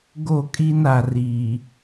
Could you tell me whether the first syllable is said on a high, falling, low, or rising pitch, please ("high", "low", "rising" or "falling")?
falling